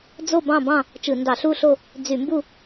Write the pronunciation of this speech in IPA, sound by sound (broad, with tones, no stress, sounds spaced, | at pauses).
d͡z o˥˧ b ɑ̃˥˧ b ɑ̃˥˧ | t͡ʃ ɯ˧˩˧ n d ɑ˧˩˧ ɬ u˥˧ ɬ o˥˧ | d͡z y˧˩˧ m b u˥˧